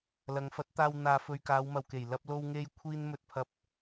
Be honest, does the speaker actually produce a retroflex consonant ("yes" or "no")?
no